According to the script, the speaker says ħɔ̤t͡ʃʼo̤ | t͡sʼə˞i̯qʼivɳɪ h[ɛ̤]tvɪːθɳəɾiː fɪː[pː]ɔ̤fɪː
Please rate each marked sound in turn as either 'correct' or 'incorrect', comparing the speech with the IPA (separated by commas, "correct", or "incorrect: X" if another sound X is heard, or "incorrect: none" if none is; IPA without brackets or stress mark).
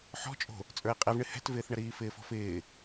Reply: correct, incorrect: f